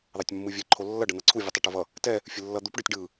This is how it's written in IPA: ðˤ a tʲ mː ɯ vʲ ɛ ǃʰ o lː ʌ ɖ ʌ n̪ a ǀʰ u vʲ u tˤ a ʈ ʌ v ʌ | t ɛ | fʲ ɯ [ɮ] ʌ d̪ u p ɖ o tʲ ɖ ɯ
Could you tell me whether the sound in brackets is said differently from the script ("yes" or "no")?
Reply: yes